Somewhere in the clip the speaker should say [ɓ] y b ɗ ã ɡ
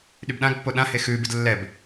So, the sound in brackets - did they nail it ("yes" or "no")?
no